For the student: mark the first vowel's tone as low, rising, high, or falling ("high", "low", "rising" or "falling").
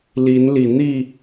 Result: rising